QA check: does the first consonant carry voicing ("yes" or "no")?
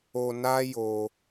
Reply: yes